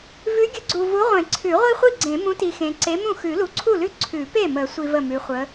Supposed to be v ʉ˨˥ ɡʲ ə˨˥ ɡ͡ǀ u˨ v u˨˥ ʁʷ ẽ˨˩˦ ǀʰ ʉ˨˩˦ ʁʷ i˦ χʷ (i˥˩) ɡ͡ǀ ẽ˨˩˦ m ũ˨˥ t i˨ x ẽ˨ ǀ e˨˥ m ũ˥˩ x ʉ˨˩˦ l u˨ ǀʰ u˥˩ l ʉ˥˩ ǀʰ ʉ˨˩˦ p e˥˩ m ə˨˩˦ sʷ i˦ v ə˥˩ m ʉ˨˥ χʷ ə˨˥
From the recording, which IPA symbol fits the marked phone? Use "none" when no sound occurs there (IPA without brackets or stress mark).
i˥˩